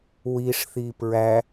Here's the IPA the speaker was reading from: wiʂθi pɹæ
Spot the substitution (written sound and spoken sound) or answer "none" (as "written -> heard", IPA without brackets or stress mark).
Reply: none